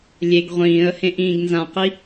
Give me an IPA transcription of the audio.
lʲ e ɡ ʁʷ ĩː ə̯ h ẽ ʔ ĩː ɡ n z ã q i

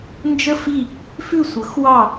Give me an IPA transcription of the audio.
n d͡ʒ ə˦˨ f i˦˨ | f ʉ˦˨ sʷ ɤ˩˥ x w ɑ˦˨

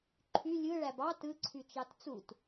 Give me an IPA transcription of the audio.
ǃʰ y lʲ ɯ ɭ æ b ɑ t ɯ ǀʰ y t͡ʃ ɑ t t͡s u t

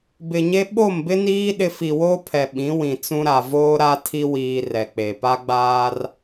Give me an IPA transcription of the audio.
b ɪ˨ ɲ e˦ ɓ o˦˨ m b ɪ˦ n iː˦ ɗ ɪ˦ f i˨ w oː˦ pʰ ɛ˨ ɓ ĩ˨˦ w ĩ˨ t͡s ũ˦ ɾ a˨ v oː˦ ɾ a˦ tʰ i˦ w iː˨ r ɛ˨ k͡p e˨ p a˦ ɡ͡b aː˦ r

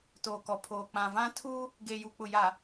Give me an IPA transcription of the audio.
t oː˨ k ɔ˨ pʰ oː˨ k͡p ã˨ v ã˦ tʰ uː˦ | ɡ eː˨ j u˨ k͡p ʊ˨ j a˨

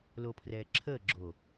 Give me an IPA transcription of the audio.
l o pʰ r ɛː ǁʰ ə ɡ͡ǁ o

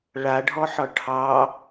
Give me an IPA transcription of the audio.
ɭ a ɖʱ ɔ ħ ɒ ʈʰ ɑ

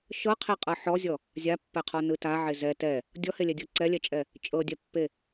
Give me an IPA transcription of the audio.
ʃ ɤ qʰ e qʼ ɤ ħ ɔ zʲ ɔ | zʲ a pː ɛ qʰ ɔ n ɯ t a ʕ e z ɛ t ɛ | dʲ ɔ h e lʲ ɛ dʲ ɤ ǀ ɛ lʲ ɛ t͡ʃʼ ɛ | t͡ʃʼ ɤ dʲ ɛ pː e

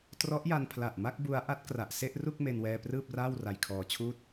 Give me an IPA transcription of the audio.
t r ɔ˦˥ ʔ j a˧ n pʰ l a˨˩ ʔ m a˥˩ k̚ b u˦˥ a̯ ʔ a˦˥ t̚ k r a˨˩ ʔ s e˥˩ ʔ r u˥˩ k̚ m e˧ n w ɛː˧ p r ɯː˥˩ p̚ r aː˥˩ w r a˧ j kʰ ɔː˧ t͡ɕʰ uː˥˩ t̚

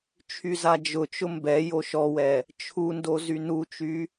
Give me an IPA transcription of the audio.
t͡ʃʰ y z a d͡ʒ ʊ t͡ʃ ʊ m b ɛ j o ʃ ɔ w ɛ | t͡ʃʰ u n d o z y n u t͡ʃ y

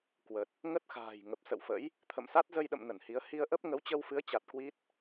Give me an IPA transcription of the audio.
k w ə˨˩ t̚ | ŋ ə˦˥ t̚ x a̤ː˨˩ j ŋ ə˨˩ p̚ s ə̰˧˨ w f ə̰˧˥ j | t̪ʰ ə̰˧˨ m s a˦˥ t̚ z ə˧ j ɗ ə̰˧˨ m n ə˧˩ n h i˨˦ ə̯ h i˧ ə̯ ʔ ə˦˥ p̚ ŋ ə˨˦ w t͡ɕ ə˧ w f ɨ˨˦ ə̯ t͡ɕ a˨˩ t̚ k w i˦˥ t̚

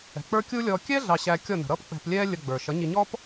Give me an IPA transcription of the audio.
ɛ̤˨ k͡p ə˞˦ kʲ u˦ lʲ ɔː˧ kʲ ɛ˦ ɮ ɑ˧ ɕ æ˧ kʲ ɔ˦˨ n ə̤˨ ɾ ʌː˦ p k͡p ɛ̤˧ p lʲ ɛː˦ lʲ ə˧ ɡ͡b ə˞˨ ʃ ʌ˨˦ ɲ i˧ ɲ ɔ˦ p

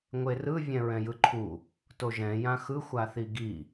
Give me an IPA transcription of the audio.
ŋʷ e r ɯ vʲ ɛ̃ ɹ ɛ̃ j ɯ ǃʰ u | t o ʒ ɛ̃ j ã x ɯ xʷ a θ i ɡ i

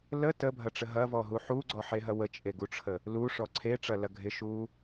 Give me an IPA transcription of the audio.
l ə t ə bʱ ɐ ʈ͡ʂ ə ɦ ɐ v ɔ ɦ u ħ u ɡ͡ǀ ɔ ħ e ɦ ɐ w ə t͡ʃʼ e ɡ u ʈ͡ʂʰ ə | l u ʂ ɔ ǀʰ e ʈ͡ʂ ɐ l ɐ ɡʱ ɪ ʃ u

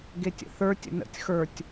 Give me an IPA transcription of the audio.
ɡ e tʲ ə̰ θ ə˞ tʲ ə̰ n ə̰ tʲ x ə˞ tʲ

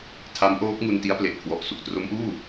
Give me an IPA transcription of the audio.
tʰ a˦˥ m ʔ oː˦˥ k̚ ŋ u˧ n t i˦˥ a̯ p l e˨˩ ʔ kʰ w ɔ˨˩ ʔ s u˨˩ k̚ t r o˦˥ m ʔ uː˥˩

